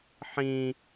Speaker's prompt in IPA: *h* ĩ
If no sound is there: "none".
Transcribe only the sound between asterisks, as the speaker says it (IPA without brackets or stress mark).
ħ